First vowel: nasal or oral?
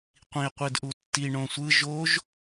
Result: nasal